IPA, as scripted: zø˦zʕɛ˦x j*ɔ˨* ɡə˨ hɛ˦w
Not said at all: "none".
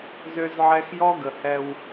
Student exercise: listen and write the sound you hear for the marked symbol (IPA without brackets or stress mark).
ɔ˦